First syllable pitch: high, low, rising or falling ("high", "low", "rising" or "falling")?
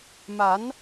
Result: rising